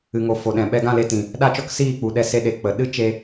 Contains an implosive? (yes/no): yes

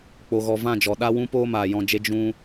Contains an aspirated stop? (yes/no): no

